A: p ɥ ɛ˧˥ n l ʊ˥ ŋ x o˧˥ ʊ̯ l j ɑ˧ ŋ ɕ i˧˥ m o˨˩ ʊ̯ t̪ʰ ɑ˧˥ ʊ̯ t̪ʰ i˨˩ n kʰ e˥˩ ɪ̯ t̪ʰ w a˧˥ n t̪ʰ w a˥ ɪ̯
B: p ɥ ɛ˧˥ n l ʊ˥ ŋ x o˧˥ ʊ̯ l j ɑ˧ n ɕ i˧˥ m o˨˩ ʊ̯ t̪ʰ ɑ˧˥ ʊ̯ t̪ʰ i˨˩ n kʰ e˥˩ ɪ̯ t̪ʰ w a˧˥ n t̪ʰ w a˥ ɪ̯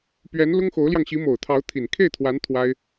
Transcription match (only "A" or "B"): A